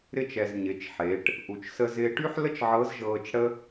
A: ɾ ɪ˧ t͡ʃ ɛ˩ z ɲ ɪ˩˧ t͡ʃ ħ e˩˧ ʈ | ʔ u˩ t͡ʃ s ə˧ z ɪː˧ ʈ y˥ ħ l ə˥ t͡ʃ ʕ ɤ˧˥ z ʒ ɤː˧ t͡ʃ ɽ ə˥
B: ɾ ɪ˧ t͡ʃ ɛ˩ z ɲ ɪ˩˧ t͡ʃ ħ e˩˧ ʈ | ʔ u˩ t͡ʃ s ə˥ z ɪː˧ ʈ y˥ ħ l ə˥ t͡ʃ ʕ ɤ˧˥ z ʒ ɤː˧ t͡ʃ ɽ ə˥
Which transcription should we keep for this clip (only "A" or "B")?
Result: A